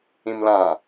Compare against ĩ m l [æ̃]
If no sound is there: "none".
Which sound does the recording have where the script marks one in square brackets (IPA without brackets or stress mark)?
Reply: ã